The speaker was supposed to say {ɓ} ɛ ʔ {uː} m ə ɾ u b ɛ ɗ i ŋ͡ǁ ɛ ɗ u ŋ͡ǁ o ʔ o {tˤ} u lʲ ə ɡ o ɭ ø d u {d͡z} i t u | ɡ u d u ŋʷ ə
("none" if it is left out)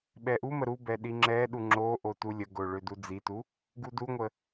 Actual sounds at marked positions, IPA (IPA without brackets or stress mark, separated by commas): ɓ, u, t, d͡z